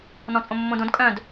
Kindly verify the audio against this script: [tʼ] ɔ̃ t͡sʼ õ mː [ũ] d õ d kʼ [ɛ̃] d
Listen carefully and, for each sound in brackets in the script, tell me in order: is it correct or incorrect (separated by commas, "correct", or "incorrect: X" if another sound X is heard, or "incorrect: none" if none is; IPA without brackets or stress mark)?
incorrect: n, incorrect: õ, incorrect: œ̃